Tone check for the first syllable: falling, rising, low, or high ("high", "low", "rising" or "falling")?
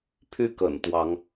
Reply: falling